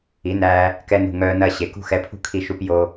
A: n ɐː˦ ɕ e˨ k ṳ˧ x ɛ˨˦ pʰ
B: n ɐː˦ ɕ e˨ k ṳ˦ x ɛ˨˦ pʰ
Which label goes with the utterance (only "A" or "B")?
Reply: B